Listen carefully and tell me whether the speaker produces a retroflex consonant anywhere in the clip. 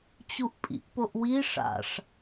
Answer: yes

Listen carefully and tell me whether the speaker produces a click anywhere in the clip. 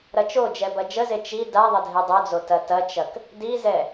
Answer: no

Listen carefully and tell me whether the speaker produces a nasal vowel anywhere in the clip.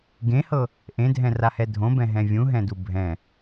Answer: yes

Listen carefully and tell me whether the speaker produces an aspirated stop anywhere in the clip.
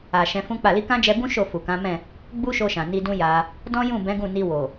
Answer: no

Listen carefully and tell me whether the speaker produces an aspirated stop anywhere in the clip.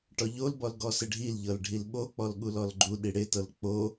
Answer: no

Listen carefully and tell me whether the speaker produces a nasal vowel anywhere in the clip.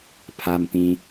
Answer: yes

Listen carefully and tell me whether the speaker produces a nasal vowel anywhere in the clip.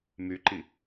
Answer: no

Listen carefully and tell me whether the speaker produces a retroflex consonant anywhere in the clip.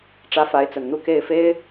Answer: yes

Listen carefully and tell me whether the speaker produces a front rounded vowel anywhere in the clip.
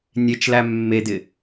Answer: no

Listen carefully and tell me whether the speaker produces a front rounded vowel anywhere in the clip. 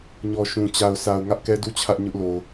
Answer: no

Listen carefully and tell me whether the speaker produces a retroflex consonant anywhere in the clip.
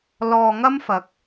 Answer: no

